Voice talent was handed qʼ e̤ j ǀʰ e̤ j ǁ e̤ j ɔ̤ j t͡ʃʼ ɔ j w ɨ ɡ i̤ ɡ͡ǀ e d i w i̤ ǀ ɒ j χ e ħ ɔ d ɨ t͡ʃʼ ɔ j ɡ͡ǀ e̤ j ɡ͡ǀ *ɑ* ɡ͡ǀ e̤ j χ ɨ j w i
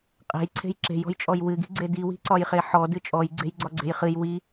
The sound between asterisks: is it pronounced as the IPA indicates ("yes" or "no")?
no